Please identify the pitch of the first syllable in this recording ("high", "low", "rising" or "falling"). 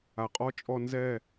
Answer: low